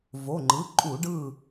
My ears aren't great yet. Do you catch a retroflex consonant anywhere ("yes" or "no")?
yes